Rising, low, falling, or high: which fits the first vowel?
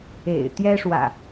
low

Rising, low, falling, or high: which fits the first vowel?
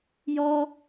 high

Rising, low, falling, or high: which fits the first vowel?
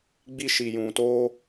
high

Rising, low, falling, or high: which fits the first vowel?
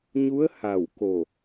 rising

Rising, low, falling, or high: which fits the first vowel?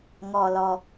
low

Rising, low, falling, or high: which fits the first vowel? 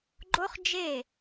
high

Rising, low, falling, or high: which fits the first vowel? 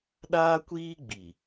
high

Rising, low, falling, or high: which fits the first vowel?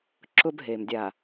high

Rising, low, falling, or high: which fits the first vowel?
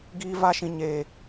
high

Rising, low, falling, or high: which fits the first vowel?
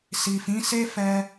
low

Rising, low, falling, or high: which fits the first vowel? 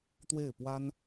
falling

